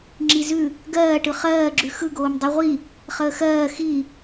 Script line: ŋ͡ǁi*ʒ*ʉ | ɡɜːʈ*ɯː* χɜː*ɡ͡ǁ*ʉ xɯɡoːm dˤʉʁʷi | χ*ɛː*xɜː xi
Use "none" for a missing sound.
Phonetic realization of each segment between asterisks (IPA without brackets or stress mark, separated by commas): z, ɯ, ɡ͡ǁ, əː